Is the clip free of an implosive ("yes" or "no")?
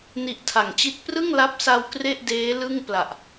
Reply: yes